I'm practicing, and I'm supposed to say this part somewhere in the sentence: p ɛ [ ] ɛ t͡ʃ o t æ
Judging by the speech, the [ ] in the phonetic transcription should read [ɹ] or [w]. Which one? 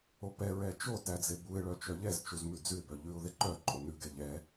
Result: ɹ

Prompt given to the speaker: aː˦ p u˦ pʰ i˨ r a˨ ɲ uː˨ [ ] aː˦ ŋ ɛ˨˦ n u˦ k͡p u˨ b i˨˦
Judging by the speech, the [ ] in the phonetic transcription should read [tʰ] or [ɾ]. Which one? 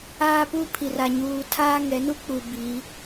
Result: tʰ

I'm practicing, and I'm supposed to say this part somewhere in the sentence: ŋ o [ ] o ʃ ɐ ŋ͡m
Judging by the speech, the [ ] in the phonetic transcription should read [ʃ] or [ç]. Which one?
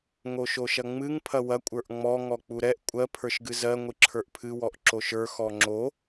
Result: ʃ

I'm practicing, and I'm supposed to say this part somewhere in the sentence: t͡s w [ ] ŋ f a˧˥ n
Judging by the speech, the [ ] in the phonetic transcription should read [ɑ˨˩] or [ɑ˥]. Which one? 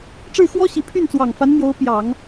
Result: ɑ˨˩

